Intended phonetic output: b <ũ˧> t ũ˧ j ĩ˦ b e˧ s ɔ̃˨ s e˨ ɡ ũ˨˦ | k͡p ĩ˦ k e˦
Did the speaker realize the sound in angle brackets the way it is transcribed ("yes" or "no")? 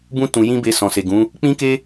no